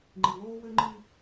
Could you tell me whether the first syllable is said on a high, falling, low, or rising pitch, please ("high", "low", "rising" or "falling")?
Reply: low